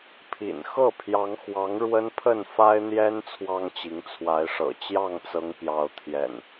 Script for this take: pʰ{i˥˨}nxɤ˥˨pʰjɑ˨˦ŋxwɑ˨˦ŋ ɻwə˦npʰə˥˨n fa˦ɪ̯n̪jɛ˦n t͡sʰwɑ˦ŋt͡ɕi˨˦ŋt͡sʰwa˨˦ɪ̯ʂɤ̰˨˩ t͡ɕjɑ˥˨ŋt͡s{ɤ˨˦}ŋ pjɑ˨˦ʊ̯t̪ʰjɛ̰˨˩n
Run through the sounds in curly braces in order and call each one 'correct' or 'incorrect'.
incorrect: ḭ˨˩, correct

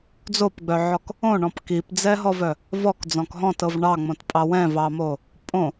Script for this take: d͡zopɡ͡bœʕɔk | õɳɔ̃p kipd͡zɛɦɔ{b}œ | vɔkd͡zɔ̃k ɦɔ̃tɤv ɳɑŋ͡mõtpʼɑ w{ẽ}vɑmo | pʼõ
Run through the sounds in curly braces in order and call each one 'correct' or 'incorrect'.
incorrect: v, incorrect: ɛ̃

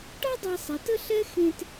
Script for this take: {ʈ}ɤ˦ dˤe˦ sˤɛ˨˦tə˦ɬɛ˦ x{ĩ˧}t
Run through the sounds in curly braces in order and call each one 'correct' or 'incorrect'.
correct, incorrect: ẽ˧

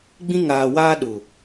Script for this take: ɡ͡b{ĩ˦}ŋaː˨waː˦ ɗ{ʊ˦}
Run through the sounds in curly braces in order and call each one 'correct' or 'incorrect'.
correct, incorrect: ʊ˨

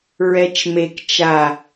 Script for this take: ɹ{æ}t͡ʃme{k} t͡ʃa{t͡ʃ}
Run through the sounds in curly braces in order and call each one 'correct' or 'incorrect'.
incorrect: ɛ, correct, incorrect: none

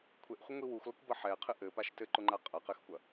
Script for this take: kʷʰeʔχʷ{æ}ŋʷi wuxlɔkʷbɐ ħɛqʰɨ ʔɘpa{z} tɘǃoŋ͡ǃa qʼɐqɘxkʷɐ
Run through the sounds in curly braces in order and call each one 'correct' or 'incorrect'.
incorrect: ɐ, incorrect: ʃ

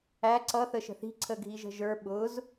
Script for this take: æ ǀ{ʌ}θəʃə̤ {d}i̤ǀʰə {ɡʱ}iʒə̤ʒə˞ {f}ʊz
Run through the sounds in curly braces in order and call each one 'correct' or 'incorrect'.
correct, incorrect: θ, correct, incorrect: ɓ

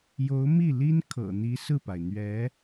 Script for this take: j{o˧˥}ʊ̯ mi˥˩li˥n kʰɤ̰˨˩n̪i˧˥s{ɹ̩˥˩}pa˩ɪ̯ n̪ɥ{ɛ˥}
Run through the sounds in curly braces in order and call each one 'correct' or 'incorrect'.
correct, correct, incorrect: ɛ˧˥

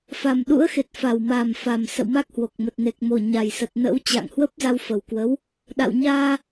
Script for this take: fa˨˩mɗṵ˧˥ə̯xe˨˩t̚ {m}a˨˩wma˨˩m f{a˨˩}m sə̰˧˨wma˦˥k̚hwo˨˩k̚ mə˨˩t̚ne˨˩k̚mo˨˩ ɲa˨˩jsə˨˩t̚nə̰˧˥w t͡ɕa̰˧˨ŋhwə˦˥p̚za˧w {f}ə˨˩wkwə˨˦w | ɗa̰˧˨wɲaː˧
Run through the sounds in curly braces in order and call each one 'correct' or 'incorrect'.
incorrect: f, correct, correct

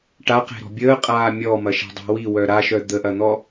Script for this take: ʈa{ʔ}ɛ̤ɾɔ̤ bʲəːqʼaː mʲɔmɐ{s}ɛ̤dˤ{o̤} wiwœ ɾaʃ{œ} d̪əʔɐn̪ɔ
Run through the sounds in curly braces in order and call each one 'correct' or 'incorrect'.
incorrect: q, incorrect: ʃ, correct, correct

